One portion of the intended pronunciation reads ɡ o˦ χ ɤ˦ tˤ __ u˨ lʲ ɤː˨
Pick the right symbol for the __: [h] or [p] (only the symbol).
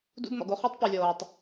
p